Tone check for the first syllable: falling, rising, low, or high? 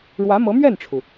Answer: rising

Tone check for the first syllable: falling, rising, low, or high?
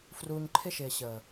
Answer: low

